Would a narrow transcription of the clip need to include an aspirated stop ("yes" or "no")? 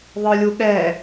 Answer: no